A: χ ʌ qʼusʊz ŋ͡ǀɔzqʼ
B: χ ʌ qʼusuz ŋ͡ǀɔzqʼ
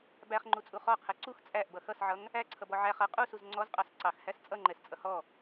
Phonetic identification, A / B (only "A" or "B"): B